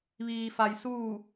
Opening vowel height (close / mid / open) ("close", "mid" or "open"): close